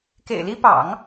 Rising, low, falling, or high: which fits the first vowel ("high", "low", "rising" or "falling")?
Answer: low